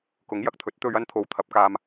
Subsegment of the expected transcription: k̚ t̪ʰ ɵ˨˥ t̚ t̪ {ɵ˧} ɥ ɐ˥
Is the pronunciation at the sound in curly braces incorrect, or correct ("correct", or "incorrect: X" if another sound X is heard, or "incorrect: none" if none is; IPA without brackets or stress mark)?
correct